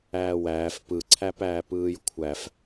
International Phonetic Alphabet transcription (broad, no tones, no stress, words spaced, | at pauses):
æːwæːf pɯǀʰæpæː pɯːjkʷʰæf